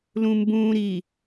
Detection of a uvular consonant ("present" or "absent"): absent